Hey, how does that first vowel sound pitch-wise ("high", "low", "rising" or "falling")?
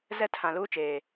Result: high